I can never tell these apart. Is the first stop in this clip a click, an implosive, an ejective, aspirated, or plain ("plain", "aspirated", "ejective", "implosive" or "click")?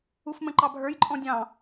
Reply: click